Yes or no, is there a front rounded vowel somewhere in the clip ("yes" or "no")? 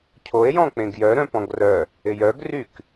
yes